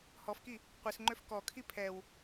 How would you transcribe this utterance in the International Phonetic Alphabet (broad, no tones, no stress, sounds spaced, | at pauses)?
h ɔ f k i | qʷ i s ŋ͡ǃ ø f k ɔ kʰ i pʰ ɛ w